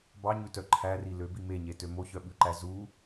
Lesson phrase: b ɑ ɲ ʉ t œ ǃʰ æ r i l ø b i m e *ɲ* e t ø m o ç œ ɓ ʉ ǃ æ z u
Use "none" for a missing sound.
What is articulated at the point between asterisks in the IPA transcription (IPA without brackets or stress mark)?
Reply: ɲ